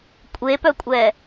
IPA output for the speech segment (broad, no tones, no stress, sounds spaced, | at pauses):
kʷʼ e p œ kʷʼ ɛ